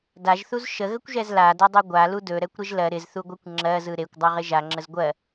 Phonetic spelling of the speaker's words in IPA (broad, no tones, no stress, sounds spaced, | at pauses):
d a ʒ θ u z ʃ ə ɣ ə kʷ ʒ ɛ z l a d ɜ dˤ e ɡʷ a l u d ɵ ɾ ɛ kʷ ɾ ɪ ʒ l ɜ ɾ ɪ z θ u ɡʷ ɜ kʷ ŋ͡ǁ ɜ z ɯ ɾ e kʷ dˤ ɜ ʁ ɪ ʒ a ŋ͡ǁ ə z ɡʷ ɜ